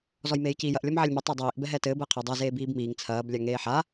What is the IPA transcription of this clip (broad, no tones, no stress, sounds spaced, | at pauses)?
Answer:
z ɔ j m eː j c iː j ɐ ʔ lʲ ɔ m ʕ ɛ lʲ m ɘ tˤ ɛ dˤ iː ʔ b ɛ ɦ ɛ t ɘː b ɘː qʰ i dˤ ɛ z eː b iː b m iː ŋ t͡sʰ ɐː b lʲ a ŋ eː ħ a